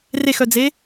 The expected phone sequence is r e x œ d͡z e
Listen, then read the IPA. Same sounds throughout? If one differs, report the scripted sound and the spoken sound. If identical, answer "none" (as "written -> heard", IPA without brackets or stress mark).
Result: none